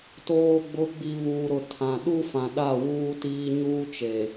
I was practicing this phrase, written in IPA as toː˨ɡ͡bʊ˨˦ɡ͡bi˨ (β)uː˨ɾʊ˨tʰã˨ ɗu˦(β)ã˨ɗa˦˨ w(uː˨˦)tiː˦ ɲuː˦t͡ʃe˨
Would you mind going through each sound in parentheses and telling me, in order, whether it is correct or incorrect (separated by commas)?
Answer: correct, incorrect, incorrect